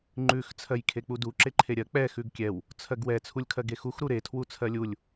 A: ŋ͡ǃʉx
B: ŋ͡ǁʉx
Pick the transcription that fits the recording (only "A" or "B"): A